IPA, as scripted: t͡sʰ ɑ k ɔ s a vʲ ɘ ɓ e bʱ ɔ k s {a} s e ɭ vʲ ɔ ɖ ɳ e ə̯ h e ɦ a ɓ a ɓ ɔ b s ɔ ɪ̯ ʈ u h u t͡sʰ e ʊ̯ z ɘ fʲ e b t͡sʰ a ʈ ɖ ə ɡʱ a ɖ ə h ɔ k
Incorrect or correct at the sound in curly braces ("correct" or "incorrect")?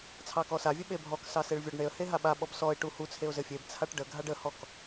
incorrect